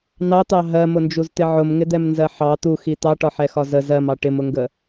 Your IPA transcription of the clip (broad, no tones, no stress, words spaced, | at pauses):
nɑt̪ɑ ɦɜmʊnd͡ʒuzt̪ɪ ʕʊmŋɪd̪ɛmnzɜ ħɑ t̪uxi t̪ɑʈɒħɛxɒ zə zɜmɑ ʈɪmʊŋɡə